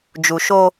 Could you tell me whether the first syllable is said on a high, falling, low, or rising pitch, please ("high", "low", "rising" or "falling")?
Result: low